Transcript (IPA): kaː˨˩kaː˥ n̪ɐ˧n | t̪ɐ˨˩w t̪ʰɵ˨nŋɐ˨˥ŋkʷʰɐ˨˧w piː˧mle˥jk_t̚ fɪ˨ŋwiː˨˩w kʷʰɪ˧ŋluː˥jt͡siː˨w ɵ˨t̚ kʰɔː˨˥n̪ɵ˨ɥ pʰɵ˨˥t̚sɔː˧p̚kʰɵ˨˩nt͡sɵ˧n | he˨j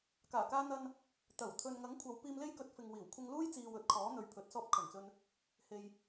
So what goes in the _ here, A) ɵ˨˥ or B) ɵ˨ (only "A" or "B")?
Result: A